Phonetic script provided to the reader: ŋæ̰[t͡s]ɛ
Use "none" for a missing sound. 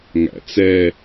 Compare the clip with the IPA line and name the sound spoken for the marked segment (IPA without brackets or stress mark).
t͡s